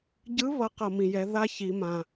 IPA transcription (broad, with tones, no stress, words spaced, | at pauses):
ɟɯ˧˥βʌ˩˧ qʌ˩mĩ˩jɛ˩˧ ða˥ çi˩˧ mã˩